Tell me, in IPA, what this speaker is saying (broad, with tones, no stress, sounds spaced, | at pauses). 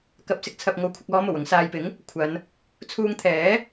k ɐ˨ p̚ s ɪ˧ k̚ t͡sʰ ɐ˨ p̚ ŋ o˨ w kʷʰ ɪ˨ k̚ ɔː˧ m o˨˩ w ʊ˧ ŋ s aː˨ j p ɪ˨˥ ŋ | kʷʰ ɐ˨˧ n | t͡sʰ uː˧ ŋ t̪ʰ ɛː˨˥